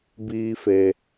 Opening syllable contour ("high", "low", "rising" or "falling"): high